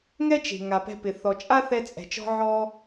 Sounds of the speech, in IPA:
ŋɛ˥t͡ʃe̤˩ ŋa˩pɛ̤˧pɪ˩ θɔ˩t͡ʃʼa˥ θɛ˧t͡sʼɛ̤˩t͡ʃɔ̤˧ ʕɔ˧

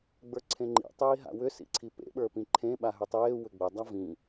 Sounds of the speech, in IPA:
ɡ͡bə˞ǀʰẽŋ͡ǃḭ tˤiːɦa̰wʏ sḭǀʰipḛ ɓə˞pĩǃʰẽ ɓaɦʏtˤeː wʏɡ͡bɘ dˤavĩ

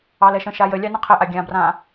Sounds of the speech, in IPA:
ɑlɛʃə̃ ʃajə lʲɑnə̃qʰɘʔa ɡʲãbrã

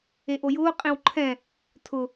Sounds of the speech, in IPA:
eʔojʊː qʼẽwǃʰɛ̃ | tʰʊ

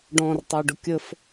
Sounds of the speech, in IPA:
ɖɔ̃rtˤə˞ɖʊ kʲəf

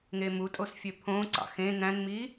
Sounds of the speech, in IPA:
ŋemutʼos fʲøpʰõǀɑ̰ xẽ næ̃nmi

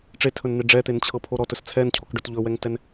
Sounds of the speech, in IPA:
ʈ͡ʂetʰɵnn̪e ɖ͡ʐɛt̪ent͡ɕʰɤpʰo ɾɔtɵs t͡sʰɛncʰɔkɖɵt ʎɵwɛŋtɛn

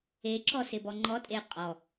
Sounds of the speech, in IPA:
eǁɔsɪbɔ ŋ͡ǃɔtʼe qʼɔ

